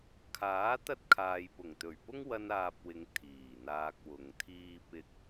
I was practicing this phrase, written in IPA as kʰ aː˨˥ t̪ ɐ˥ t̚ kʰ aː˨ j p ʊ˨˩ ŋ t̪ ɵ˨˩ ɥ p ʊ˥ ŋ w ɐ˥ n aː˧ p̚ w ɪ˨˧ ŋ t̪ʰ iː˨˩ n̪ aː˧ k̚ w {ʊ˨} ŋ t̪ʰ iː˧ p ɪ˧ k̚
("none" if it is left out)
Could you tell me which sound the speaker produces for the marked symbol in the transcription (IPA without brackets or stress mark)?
ʊ˨